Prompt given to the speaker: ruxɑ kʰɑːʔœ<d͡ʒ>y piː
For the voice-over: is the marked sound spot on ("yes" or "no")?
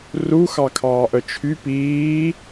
no